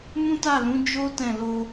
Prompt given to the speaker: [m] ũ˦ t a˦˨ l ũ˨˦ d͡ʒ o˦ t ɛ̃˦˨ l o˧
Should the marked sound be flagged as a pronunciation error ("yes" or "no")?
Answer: no